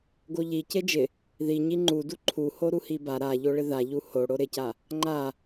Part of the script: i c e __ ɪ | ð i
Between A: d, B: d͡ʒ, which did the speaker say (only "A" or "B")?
B